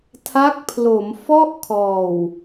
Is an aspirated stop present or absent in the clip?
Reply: present